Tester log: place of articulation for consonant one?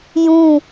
palatal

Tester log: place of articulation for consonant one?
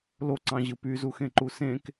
alveolar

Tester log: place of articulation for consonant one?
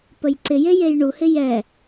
labial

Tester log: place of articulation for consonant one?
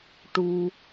retroflex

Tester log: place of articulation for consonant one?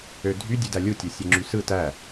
alveolar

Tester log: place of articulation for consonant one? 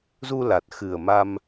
alveolar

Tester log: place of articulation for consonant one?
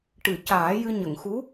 retroflex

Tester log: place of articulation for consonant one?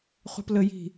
uvular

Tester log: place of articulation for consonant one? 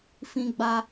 labial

